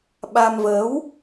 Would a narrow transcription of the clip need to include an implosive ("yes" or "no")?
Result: yes